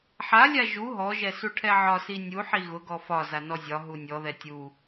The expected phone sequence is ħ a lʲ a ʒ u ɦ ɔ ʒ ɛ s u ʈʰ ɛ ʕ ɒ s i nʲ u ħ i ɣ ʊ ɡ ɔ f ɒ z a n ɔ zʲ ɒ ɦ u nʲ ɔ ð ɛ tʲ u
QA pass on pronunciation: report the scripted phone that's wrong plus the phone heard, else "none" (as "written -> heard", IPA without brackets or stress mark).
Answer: none